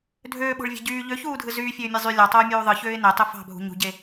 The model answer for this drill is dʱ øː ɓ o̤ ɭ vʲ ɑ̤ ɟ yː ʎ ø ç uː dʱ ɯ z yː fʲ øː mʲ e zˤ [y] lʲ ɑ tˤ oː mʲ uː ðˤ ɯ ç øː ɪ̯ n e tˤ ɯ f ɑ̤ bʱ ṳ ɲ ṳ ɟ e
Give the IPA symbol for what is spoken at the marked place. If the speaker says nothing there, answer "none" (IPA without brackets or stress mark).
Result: y